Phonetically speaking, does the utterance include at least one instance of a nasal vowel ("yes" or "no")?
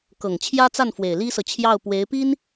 no